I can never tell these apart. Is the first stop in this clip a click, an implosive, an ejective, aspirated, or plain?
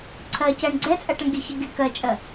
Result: click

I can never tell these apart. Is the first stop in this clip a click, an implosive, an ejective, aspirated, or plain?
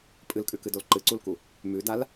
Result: ejective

